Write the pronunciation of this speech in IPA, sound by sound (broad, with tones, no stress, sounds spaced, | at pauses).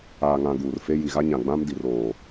aː˨ ŋ ã˨ ɡ uː˨ r f e˦ j i˨ ɣ a˦ ɲ ã˨ ɡ͡b ã˦ m d i˨ r oː˨